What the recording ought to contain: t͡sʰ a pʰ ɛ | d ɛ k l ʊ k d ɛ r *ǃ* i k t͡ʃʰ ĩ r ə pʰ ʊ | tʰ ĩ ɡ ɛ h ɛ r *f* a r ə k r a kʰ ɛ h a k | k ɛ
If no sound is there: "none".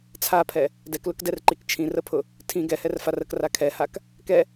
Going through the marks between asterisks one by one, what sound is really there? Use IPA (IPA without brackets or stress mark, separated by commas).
ǃ, f